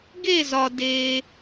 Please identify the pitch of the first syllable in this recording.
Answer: falling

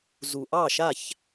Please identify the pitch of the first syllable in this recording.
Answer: low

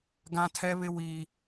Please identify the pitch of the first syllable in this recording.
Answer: high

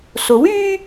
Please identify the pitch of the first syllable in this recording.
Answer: rising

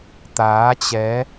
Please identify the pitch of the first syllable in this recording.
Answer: rising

